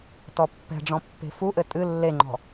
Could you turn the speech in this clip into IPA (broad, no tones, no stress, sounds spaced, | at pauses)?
t ɔ pː ɛ̤ ɖ͡ʐ ɔ̃ pː e̤ f u ʔ ɘ tʼ ɨ lː e ŋ͡ǃ ɔ̤